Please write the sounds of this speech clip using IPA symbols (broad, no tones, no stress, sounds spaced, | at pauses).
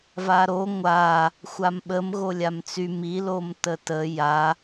v a ɾ o ŋʷ a | xʷ a m ɓ ə m ɣ o lʲ a m t͡s y m i l o m t ə t ə j a